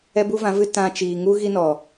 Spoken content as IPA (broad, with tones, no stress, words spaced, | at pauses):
ɛ˦bu˦vã˨˦vɨ˦ tã˧ t͡ʃiː˨ŋu˦ ɣi˦nɔ˨